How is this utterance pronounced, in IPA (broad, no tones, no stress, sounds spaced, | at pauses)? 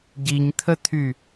ɟ i ɲ t̪ʰ ə t̪ʰ y